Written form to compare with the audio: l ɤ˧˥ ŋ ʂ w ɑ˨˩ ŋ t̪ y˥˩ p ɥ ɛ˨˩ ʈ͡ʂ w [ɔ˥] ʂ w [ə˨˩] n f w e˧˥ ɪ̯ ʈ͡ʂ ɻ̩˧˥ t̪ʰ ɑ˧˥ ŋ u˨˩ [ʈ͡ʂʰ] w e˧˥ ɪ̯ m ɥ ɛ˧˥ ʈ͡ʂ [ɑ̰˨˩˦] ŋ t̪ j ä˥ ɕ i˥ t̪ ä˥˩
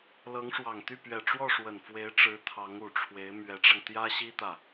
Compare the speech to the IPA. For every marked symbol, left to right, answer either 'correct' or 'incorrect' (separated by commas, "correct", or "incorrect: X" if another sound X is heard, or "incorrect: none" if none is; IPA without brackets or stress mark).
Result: incorrect: ɔ˥˩, correct, correct, incorrect: ɑ˧